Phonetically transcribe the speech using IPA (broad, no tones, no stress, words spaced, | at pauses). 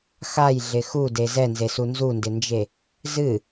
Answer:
xajɮɪ xude zɛnzesu nzundɪnd͡ʒe | zɨ